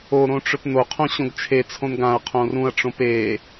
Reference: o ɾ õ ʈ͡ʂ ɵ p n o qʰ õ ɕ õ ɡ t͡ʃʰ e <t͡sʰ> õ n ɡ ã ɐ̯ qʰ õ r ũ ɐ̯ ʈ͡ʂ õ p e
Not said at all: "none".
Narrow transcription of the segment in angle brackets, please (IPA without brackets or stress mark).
t͡sʰ